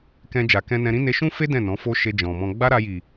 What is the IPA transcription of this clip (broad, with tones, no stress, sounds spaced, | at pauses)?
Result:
k ɛ̃˧ d͡ʒ a˨ k ɛ̃˧ n ɛ̃˧ ɾ ĩ˦ n e˧ ʃ ũ˦ f e˦ d ɛ̃˦˨ n ɔ̃˨˦ f o˦ ʃ e˧ d͡ʒ ɔ̃˨ m ɔ̃˧ ɡ͡b a˦ ɾ a˧ j i˨